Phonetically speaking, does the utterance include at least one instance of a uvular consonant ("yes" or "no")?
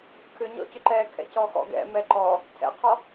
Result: yes